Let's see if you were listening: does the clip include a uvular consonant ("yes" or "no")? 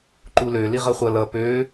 yes